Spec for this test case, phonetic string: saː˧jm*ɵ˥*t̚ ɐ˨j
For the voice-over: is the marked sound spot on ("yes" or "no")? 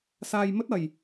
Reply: yes